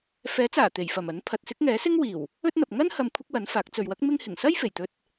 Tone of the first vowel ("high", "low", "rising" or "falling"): rising